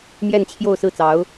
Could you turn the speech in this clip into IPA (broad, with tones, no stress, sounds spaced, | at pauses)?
m j ɛ˥˧ n t͡ɕʰ j o˥˧ ʊ̯ s ɹ̩˥˩ t͡s ɑ˧˥ ʊ̯